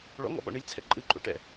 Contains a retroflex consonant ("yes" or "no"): yes